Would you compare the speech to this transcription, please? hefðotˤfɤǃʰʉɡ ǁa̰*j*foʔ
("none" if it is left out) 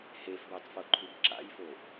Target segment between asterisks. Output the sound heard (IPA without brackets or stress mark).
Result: j